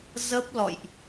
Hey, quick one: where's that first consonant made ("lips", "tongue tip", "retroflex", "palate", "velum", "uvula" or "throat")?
tongue tip